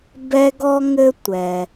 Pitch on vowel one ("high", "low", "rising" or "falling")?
high